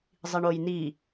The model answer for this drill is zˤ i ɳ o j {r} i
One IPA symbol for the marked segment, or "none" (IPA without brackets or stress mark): n